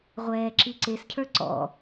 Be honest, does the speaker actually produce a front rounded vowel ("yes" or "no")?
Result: no